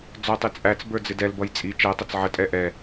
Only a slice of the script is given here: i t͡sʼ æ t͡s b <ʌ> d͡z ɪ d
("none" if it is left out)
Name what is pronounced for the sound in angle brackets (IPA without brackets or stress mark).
ə˞